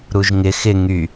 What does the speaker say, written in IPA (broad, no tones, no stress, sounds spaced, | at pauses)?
ɾ u ʒ ŋ ɪ x ɪ ŋ y